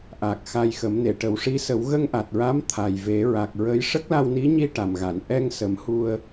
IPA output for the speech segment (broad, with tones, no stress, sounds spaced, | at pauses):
ʔ a˨˩ k̚ x a˧ j x ə˨˩˦ m n e˨˩˨ ʈ ə˨˩˦ w ʂ i˧˥ s ə˨˩˦ w ɣ ə˧ ŋ ʔ a˨˩ t̚ ɹ a˧˥ m t̪ʰ a˨˩ j v e˨˩˦ ɹ a˨˩ k̚ ɹ ə˧˥ j ʂ ə˦˥ k̚ l a˧ w n i˧˥ ɲ i˧ ʈ a˨˩ m ɣ a˨˩˨ n ʔ ɛ˧ ŋ s ə˨˩˦ m h u˧ ə̯